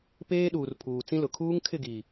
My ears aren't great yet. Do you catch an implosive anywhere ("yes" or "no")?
yes